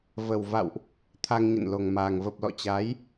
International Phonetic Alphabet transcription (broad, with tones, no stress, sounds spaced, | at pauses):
v ə˨˩ w v a̰˧˨ w ʔ | t̪ʰ a˧ ŋ ɲ ə̰˧˨ n l o˨˩ ŋ m aː˨˩ ŋ v ə˨˩ p̚ l ɔ̰˧˨ t͡ɕ aː˨˦ j